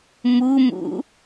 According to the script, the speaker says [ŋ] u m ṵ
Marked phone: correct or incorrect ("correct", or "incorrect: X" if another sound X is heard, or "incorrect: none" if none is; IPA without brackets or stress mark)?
incorrect: m